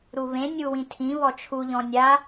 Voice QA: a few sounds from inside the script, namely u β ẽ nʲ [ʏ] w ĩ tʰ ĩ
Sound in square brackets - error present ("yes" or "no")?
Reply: yes